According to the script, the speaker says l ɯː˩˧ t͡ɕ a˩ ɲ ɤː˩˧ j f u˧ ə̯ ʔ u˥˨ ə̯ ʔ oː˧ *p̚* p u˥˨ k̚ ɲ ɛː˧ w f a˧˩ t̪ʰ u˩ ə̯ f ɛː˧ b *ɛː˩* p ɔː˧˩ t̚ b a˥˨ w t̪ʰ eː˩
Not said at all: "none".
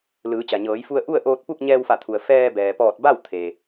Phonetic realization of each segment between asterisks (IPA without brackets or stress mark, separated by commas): t̚, ɛː˩